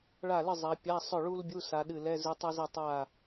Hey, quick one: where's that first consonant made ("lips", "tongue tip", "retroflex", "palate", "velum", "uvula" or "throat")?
retroflex